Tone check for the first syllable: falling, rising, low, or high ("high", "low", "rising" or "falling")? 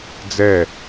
falling